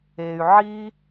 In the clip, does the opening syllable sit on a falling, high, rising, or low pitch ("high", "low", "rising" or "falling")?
low